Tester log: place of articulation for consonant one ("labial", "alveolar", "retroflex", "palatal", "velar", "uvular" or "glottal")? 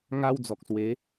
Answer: velar